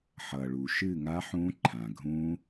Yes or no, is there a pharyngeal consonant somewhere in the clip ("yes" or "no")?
yes